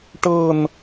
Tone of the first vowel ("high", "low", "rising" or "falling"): falling